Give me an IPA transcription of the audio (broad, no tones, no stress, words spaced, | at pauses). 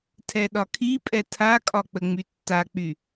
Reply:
tʰɛɗɒkʰipʼɛ tʰakʼɒ k͡pəŋ͡mytːak͡py